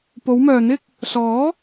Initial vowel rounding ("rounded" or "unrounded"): rounded